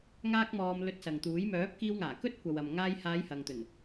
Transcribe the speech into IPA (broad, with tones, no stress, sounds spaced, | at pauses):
ŋ aː˥ k̚ m ɔː˧ m l ɵ˧ t̚ s ɐ˨ ŋ t̪ uː˨˥ j m œː˨˥ p̚ k iː˧ w ŋ aː˨˩ k ɵ˥ t̚ kʷ ɐ˨ w ɐ˨ m ŋ aː˧ j h aː˨˧ j h ɐ˨ ŋ t̪ ɵ˨˩ n